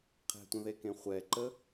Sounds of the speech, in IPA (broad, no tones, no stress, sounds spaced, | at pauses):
qʰ ɛ̤ tʷ ə̃ ð e k ẽ χʷ ɛ ǃ ə